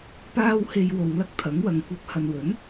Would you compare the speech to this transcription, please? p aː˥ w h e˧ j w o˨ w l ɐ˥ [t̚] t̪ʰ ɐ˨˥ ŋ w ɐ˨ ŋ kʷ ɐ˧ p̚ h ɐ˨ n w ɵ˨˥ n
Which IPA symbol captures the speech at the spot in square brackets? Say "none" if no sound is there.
k̚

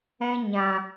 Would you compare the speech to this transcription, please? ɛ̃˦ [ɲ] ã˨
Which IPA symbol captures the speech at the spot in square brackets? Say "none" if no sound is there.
ɲ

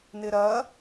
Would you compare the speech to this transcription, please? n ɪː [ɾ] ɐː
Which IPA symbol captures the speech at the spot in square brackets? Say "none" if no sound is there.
ɾ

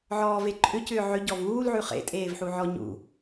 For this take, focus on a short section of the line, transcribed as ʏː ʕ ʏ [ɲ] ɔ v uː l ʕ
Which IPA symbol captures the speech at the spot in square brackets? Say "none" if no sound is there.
ɟ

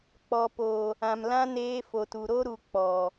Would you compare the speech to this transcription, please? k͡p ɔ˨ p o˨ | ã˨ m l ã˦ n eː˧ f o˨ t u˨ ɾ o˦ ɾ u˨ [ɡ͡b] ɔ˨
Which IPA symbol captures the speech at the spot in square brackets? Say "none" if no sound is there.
k͡p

